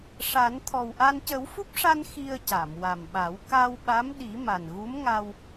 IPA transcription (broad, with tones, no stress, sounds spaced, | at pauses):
ʂ a˨˩˦ n t̪ʰ ɔ˨˩ w ʔ a˧ n c ə˨˩˦ w f u˦˥ p̚ ʂ a˧ n x i˧ ə̯ c a˨˩˨ m w a˨˩ m ɓ a˨˩˦ w k a˧ w ɓ a˧˥ m ɗ i˨˩˦ m a˨˩ n ɣ u˧˥ m ŋ a˧ w